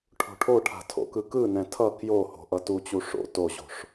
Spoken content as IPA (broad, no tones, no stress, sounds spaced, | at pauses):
ʈʰ o̤ ʈʰ o ʈʰ a̤ tʰ o̰ k ɯ k ɯ n ɛ̃ tʰ ʌ k j o h o̤ ʔ ʌ t u t͡ɕ u ʂ o̰ t o ʑ o̤ ʂ